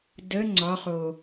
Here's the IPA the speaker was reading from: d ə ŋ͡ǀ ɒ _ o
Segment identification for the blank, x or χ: χ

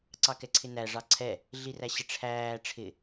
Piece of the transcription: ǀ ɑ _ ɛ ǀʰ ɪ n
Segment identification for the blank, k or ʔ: k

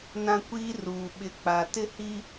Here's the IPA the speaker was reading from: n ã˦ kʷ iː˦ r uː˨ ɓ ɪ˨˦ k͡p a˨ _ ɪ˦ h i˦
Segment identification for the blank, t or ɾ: t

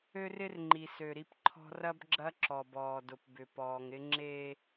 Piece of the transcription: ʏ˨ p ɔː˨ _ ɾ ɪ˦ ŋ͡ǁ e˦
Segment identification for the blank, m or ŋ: ŋ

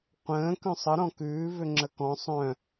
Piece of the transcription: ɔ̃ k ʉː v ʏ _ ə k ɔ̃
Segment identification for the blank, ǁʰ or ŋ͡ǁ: ŋ͡ǁ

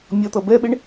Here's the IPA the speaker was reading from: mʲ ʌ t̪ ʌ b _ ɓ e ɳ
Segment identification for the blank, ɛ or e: ɛ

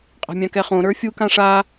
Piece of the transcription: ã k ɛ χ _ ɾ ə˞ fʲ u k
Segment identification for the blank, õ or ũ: õ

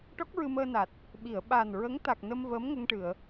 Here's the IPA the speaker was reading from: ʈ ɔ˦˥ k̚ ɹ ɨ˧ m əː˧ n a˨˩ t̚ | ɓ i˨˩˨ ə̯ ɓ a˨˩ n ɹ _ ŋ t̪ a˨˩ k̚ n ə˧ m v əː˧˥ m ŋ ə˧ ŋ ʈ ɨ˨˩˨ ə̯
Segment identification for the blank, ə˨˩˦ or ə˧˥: ə˧˥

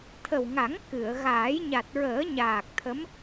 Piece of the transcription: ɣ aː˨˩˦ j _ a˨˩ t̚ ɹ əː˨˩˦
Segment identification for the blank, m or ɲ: ɲ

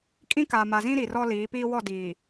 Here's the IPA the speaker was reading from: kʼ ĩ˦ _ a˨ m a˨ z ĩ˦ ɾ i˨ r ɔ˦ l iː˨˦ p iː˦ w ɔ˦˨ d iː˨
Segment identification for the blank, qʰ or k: k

